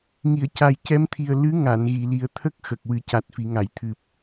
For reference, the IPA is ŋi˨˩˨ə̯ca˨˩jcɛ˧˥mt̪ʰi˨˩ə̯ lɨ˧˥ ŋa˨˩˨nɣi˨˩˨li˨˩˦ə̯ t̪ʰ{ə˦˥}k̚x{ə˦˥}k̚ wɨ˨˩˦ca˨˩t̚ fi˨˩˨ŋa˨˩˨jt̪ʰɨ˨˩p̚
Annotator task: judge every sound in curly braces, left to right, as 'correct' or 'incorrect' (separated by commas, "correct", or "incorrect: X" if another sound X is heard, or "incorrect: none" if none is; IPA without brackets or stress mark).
correct, incorrect: ə˨˩